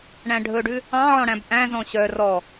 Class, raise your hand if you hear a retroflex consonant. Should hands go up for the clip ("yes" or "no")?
yes